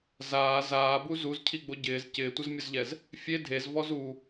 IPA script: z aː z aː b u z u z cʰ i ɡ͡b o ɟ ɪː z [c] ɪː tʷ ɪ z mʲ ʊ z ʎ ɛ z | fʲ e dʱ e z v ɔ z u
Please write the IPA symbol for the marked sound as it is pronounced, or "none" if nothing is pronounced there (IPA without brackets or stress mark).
c